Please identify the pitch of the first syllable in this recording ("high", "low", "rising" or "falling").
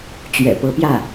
low